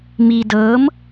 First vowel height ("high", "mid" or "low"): high